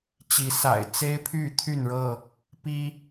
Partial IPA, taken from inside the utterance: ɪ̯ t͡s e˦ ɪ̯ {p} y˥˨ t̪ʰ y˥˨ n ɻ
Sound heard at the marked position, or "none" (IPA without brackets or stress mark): pʰ